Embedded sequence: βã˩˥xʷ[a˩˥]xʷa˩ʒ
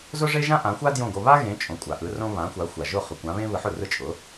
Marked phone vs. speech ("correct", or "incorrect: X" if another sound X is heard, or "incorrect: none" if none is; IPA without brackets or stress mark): correct